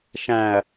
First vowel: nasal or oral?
nasal